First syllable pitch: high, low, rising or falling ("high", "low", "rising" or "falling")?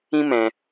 high